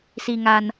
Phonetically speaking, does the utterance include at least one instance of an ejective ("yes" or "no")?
no